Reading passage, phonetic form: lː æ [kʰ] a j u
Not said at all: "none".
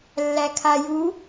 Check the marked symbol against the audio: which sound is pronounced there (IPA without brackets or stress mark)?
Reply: kʰ